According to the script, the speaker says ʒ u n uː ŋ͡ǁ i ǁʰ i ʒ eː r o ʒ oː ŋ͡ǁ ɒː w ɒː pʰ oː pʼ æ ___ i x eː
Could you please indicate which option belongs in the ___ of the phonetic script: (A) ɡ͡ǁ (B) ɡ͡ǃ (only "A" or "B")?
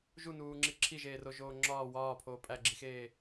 A